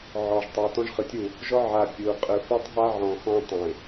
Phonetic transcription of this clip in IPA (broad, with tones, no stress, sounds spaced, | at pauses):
ʕ ɔ˨ ʒ tˤ e˨ t ɔ̃˦ ʒ χ ɯ˨ tʲ u˦˨ | ʒ ɔ˦ ʕ a˨ pʲ u˨ qʼ ɯ˨ f ɔ˦ tˤ ɦ a˦ ʕ ɔ̃˨ x ɔ̃˦ tˤ ẽ˨